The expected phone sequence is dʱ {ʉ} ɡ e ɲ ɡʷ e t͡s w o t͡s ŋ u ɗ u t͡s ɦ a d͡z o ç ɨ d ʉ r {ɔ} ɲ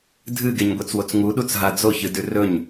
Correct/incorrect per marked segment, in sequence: incorrect, incorrect

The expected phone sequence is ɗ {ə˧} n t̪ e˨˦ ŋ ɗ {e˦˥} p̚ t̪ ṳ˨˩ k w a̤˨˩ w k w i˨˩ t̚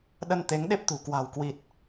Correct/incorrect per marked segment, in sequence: correct, correct

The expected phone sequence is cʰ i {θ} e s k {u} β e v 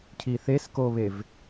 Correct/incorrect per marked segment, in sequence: correct, incorrect

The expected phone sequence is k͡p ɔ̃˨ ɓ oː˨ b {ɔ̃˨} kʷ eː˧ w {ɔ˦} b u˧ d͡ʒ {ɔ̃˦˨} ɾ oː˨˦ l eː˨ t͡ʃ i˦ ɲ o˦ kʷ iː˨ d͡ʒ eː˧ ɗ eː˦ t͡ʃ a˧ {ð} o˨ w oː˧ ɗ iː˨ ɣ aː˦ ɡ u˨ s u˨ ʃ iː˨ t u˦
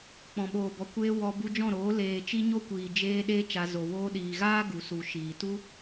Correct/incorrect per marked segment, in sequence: incorrect, incorrect, correct, incorrect

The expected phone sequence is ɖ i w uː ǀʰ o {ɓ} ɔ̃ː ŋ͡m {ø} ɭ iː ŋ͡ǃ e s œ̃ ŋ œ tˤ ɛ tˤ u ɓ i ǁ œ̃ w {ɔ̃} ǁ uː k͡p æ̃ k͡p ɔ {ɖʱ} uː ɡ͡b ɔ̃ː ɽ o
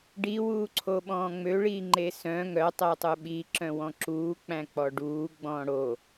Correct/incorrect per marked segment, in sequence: correct, correct, correct, incorrect

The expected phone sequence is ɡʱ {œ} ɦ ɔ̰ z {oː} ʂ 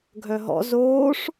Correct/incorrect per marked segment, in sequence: correct, correct

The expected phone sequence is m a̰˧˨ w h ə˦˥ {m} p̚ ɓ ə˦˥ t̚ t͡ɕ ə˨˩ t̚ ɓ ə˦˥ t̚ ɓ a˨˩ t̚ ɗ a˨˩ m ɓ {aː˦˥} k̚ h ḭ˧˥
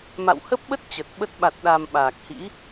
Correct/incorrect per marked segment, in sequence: incorrect, incorrect

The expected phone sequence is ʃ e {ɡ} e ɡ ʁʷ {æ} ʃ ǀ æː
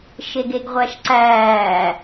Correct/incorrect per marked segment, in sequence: correct, correct

